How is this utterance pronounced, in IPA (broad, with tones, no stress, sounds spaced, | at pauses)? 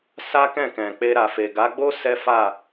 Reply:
s a˦ k ɛ̃˦˨ k ɛ̃˨ k͡p e˧ ɾ a˨ f e˨ ɡ a˨˦ ɡ͡b o˦ s ɛ˦ f a˦˨